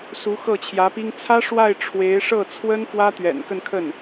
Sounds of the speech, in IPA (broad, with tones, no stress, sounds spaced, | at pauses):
s u˧˥ x ɤ˥˩ t͡ɕʰ j ä˧˥ p i˥ ŋ t͡sʰ ä˥ ʂ w a˥˩ ɪ̯ ʈ͡ʂʰ w e˧˥ ɪ̯ ʂ ɤ˥˩ t͡sʰ w ə˥ n f w ä˥ t̪ ɥ ɛ̰˨˩ n k ə˥˧ n kʰ ə˥˩ n